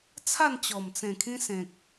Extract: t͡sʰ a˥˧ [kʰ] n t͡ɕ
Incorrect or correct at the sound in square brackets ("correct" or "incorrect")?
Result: incorrect